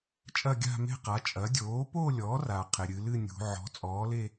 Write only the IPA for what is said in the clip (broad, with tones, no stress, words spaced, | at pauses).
t͡ʃʼɐ˥˧ɡʲa̤˥˧me̤˥˧ qa˩˥t͡ʃʼɐ˩˥ dʲoː˩˥po˥˧lʲɔ˩˥ra˩ qʰe˩ɾʲɨ˩˧lɨ˥˧nʲṳ˩˧ ʕɔ̤˩˥t͡sʼɔː˩˥le˥˧